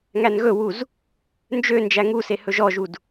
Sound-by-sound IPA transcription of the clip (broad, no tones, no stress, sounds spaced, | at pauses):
ŋ æ n ɣ ɵ w u z | n d͡ʒ ø n d͡ʒ æ ŋ u s e h ɵ ʒ ɔ ʒ u d